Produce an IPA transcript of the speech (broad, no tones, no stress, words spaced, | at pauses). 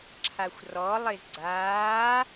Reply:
ǁʰaxʷrɔlˠɪz ɡ͡ǀaː